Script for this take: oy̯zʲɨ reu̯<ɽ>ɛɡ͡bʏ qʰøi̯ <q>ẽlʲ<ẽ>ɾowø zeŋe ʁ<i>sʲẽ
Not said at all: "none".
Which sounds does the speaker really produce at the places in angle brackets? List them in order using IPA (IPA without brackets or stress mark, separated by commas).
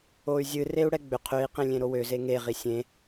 ɽ, q, ẽ, i